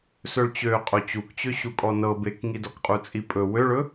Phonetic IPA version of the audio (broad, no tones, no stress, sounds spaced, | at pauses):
s ɵ ɭ t͡ɕ ø qʼ o t͡ɕ u k t͡ɕ ø ɕ u kʼ ɔ n ɤ b e k ŋ i d ɔ k qʼ u t͡sʼ i pʼ ɵ w ø ɭ ɵ